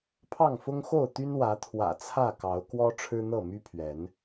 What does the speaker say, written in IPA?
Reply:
pʰ ɑ˥˨ ŋ f ʊ˦ ŋ x o˥˨ ʊ̯ t̪ y˦ n w ä˨˦ t̪ʰ w ä̰˨˩ t͡sʰ ä˥˨ k ɑ˨˦ ʊ̯ k w ɔ˦ ʈ͡ʂʰ ɻ̩˦ n̪ ɤ˥˨ m y˦ pʰ ɥ ɛ˨˦ n

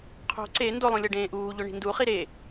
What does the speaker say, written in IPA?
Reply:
qʰ o̤ ǀ e n d o lˠ ũ lʲ ɤ ɖ ẽː ʔ uː ʎ o ɳ i̤ n d u χ i ɾ e

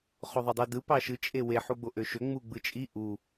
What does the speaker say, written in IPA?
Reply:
χ o ðˤ ɯ dˤ u d ɯ p ɑ ʃ ɯ t͡ʃʼ e w e ħ u ɡ͡b o ʔ ø ʃ ø ŋ͡m u ɡ͡b ɯ t͡ʃʼ i ʔ u

